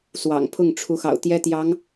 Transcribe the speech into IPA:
s w ɑ̰˨˩ ŋ pʰ ʊ˥˩ ŋ ʈ͡ʂʰ u˧˥ x ɑ̰˨˩ ʊ̯ t̪ j ɛ˥ t̪ j ɑ˧˥ ŋ

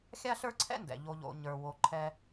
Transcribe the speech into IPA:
xʲ a˥ ɬ ə˞˥ ǀʰ ɛ̰˥ n d ɛ̰˩ ʎ o˧ ʎ o̰˧ ɲ ə˞˧ w o˧ ǃʰ ɛ˥

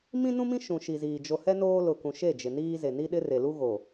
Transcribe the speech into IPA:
m ĩ˦ n ũ˦ m ĩ˦ ʃ ũ˨ ʃ i˨ z iː˨ d͡ʒ o˨ h ɛ˦ n oː˦ l ʊ˨ k ũ˨ ʃ e˦˨ d͡ʒ ɪ˨ n iː˦ z e˨ n i˦ ɗ ɪ˦ r e˨ l u˦ ɣ o˨

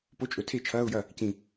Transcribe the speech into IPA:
p o˧˥˧ t͡ʃʼ ɵ˨˩˦ tʰ e˥˩ t͡ʃʰ ɐː˧˥˧ ʊ̯ j ɐ˥˩ | c ĩ˧˩

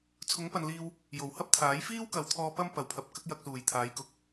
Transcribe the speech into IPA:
t͡sʰ ʊ˨˥ ŋ p ɐ˨ n l iː˧ w | j o˨˩ w h ɐ˥ p̚ t̪ʰ aː˨˥ j f iː˥ w k ɐ˨ w t̪ʰ ɔː˧ p ɐ˥ m p ɐ˨˩ w pʰ ɐ˨ p̚ k ɐ˥ k̚ j ɐ˧ k̚ s uː˨˩ j t̪ʰ aː˨˥ j k ʊ˨˥ k̚

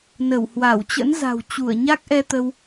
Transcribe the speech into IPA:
n ə˧˩ w h w a˧˩ w t͡ɕ ə̰˧˥ n z a̤˨˩ w t͡ɕ u˧˩ ə̯ ɲ a˦˥ k̚ ʔ ɛ˧ t̪ ə˧ w

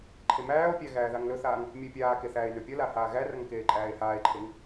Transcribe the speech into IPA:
ǃʰ e m æː o̯ pʲ æ ɣ æː ð a ŋ l ɵ θ aː ŋ | mʲ ʊ e̯ pʲ aː k e θ æː e̯ n ɵ pʲ ʌ l a h aː ɣ æ r ʌ ŋ k eː ǃʼ æː e̯ h aː e̯ ǃʰ e ŋ

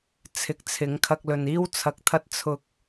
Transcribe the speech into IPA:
t͡sʰ ɪ˨˥ k̚ t͡sʰ ɪ˨˥ ŋ kʰ ɐ˧ k̚ l ɵ˨ n iː˥ w t͡sʰ ɐ˧ k̚ t̪ʰ ɐ˥ t̚ t͡sʰ ʊ˧ k̚

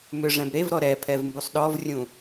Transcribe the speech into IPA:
m ʏ ʐ ɛ̃ b ɾ e v ɾ ɔ ɾ ɛ pʰ ɛ v m b u sˤ ɗ ɔ v rʲ ũ

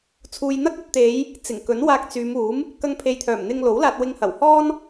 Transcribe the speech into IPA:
t͡sʰ uː˨ j n̪ ɐ˥ k̚ ɵ˧ t̚ t̪ e˨˧ j | t͡s ɪ˨˩ ŋ k ɵ˨˥ n w aː˧ k̚ t͡s yː˨˧ m uː˨˥ m | k ɐ˧ ŋ pʰ e˨ j t̪ʰ œː˨˩ m n̪ ɪ˧ ŋ l o˨˥ w l aː˧ t̚ w ɪ˧ ŋ h ɐ˨˩ w h ɔː˥ n

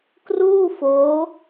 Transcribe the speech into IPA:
k r uː˥˩ f oː˦˥

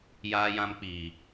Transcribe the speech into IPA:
j aː˦ j ã˦ m k͡p iː˨

